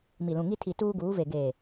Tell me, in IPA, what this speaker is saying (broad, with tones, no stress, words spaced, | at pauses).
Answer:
mi˨lũ˨ŋi˦ tʰi˨tuː˦ɡuː˨˦ve˨ ɡe˨